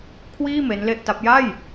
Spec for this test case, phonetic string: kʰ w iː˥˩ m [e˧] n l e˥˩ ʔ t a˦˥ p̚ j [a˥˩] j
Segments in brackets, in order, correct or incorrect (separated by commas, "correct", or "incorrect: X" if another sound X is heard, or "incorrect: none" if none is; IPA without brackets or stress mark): incorrect: e˦˥, correct